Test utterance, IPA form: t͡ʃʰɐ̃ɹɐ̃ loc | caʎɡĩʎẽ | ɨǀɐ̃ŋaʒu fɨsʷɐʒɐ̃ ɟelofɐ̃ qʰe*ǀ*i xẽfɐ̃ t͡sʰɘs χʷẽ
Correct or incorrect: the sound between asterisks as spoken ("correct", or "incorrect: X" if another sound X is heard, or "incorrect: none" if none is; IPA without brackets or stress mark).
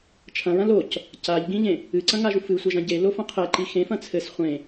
incorrect: ǃ